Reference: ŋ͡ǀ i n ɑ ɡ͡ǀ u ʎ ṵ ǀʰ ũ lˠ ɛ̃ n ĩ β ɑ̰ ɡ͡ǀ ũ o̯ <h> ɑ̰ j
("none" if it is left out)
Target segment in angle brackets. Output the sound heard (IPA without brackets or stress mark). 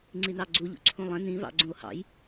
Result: h